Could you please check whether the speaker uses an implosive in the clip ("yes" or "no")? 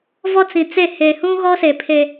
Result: no